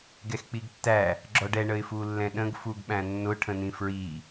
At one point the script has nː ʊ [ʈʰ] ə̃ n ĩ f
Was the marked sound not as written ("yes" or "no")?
no